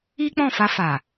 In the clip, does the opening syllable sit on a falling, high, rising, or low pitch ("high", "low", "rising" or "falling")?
high